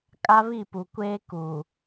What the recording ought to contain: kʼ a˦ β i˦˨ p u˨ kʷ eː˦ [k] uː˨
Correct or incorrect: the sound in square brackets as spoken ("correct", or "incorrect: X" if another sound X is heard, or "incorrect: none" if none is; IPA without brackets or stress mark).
correct